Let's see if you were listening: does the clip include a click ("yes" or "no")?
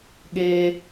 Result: no